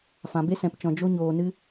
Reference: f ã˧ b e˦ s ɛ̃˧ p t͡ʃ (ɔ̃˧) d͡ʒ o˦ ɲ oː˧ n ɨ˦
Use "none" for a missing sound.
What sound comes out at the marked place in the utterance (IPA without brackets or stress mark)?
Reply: ɔ̃˧